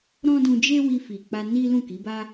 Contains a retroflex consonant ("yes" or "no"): no